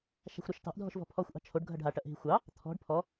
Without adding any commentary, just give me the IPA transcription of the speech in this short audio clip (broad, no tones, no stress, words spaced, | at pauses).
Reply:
ʃa̤xʷɾɑʃtɑ̤ʔ dʱɔ̤ʃvɔ̤pʰɔxʷ ʔɑ̤t͡ʃʰoɖ ɡʱɐɖɦa ʈɐʔɦi̤xʷɑ | t̪ʰɔ̤ɖ pʰɔ